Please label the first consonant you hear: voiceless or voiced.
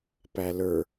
voiceless